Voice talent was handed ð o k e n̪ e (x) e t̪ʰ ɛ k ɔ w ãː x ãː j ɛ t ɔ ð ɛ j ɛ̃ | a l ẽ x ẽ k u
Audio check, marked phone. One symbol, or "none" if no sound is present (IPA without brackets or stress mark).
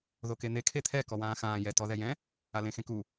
kʰ